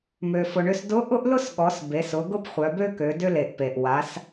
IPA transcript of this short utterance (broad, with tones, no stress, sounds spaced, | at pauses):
m ø˩ f ʊ˩ ɳ ʏ˧ s d ʊ˧˥ ʔ ʊ˥ ʔ l ʊ˥ s ɠ ɔ˩˧ s b e˩˧ s ʊ˩˧ ɡ ʊ˥ p χʷ œ˩˧ b ø˥ k ø˩˧ d ʏ˧ l e˩ ʔ p e˩ ʔ w a˩˧ s